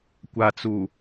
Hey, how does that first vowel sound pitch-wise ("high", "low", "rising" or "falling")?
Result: low